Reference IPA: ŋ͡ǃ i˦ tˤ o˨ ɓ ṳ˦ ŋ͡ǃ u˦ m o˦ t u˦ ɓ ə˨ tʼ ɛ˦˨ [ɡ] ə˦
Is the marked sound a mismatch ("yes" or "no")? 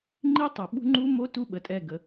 no